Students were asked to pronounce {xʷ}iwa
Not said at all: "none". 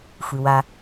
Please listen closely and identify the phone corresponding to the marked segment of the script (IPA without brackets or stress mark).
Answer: xʷ